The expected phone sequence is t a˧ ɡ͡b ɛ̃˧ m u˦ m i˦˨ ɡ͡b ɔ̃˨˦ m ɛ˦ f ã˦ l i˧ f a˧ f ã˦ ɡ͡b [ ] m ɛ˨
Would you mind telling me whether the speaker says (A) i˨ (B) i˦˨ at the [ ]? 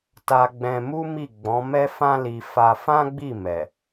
B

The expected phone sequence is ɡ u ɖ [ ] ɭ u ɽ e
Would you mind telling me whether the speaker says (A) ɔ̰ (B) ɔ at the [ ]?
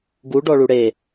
B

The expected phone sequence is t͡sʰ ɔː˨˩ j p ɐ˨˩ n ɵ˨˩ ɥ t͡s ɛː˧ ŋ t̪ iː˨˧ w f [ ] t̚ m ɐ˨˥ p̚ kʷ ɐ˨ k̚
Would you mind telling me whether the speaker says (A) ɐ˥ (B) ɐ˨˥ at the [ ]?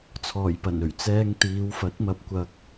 B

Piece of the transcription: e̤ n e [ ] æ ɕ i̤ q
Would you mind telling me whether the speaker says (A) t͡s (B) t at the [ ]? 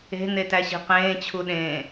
B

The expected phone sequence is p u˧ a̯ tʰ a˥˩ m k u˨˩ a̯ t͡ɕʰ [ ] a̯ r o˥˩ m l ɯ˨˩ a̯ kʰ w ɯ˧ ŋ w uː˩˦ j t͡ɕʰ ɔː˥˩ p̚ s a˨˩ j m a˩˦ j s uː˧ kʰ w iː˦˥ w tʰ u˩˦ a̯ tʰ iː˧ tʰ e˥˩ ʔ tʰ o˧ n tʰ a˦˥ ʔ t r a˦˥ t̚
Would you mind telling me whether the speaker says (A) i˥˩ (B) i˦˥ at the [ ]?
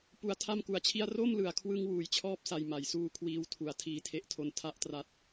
A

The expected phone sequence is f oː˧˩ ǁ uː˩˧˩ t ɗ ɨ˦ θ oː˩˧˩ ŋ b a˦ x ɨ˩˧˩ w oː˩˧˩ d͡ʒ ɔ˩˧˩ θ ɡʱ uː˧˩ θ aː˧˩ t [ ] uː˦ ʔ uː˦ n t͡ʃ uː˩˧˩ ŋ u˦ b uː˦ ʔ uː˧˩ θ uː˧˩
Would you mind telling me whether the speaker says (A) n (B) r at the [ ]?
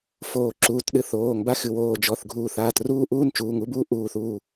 B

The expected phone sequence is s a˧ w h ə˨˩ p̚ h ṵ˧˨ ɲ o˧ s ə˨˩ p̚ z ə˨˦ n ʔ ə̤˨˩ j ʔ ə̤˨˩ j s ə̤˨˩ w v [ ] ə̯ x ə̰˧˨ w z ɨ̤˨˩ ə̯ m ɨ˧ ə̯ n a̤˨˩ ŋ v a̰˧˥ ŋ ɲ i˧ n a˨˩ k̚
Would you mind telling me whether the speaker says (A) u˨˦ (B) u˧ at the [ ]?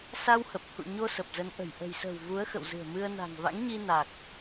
A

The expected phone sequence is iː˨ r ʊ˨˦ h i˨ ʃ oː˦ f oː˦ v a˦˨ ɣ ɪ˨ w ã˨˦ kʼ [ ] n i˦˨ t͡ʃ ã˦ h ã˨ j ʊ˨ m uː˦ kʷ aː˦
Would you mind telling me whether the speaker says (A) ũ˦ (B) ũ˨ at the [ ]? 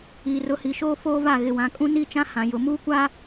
A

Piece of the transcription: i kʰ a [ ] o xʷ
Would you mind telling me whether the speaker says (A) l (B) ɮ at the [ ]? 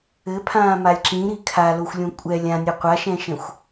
A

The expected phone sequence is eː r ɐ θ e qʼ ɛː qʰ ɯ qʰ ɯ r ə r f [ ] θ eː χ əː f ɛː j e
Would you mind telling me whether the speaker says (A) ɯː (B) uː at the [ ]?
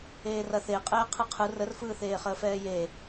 A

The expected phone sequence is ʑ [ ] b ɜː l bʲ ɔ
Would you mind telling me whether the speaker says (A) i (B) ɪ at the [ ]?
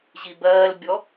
A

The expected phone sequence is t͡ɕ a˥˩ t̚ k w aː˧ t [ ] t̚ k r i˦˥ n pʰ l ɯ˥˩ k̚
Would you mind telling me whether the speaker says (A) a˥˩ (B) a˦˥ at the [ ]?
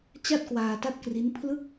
B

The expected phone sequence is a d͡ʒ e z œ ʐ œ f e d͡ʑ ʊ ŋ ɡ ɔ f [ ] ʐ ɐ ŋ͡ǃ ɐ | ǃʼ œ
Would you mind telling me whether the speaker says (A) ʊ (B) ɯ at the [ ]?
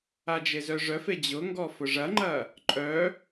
A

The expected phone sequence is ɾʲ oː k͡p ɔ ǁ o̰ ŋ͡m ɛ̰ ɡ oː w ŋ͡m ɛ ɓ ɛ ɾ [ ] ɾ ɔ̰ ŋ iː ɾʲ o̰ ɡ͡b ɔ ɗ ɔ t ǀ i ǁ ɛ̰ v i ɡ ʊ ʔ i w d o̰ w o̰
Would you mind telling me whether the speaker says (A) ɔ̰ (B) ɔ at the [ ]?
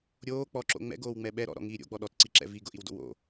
A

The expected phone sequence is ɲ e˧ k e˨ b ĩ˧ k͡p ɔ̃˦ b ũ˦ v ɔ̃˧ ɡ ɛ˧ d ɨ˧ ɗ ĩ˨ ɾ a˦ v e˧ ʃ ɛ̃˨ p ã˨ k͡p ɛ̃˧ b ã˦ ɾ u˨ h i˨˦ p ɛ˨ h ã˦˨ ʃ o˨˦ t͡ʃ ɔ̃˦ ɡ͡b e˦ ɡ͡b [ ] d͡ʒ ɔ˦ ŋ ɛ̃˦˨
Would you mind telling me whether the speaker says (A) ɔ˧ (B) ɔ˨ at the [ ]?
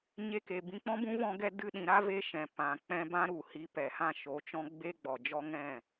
B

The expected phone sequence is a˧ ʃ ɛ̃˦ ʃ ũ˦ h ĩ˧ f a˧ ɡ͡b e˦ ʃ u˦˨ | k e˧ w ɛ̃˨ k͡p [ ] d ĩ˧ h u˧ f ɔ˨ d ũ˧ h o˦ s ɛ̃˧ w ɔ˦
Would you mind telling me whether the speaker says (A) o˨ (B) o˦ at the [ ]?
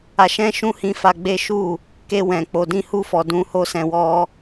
A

